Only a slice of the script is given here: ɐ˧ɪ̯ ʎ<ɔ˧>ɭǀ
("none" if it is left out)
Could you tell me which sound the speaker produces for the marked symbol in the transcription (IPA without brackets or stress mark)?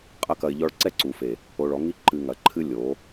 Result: ɔ˧